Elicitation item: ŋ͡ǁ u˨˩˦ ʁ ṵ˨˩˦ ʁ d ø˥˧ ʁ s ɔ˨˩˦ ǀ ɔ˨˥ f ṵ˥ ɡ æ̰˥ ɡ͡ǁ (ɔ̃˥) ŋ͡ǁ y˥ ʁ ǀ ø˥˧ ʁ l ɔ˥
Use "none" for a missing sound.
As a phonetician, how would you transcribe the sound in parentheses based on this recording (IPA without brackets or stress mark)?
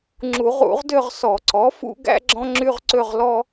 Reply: ɔ̃˥